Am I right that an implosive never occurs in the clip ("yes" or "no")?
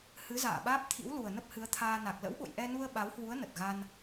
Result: no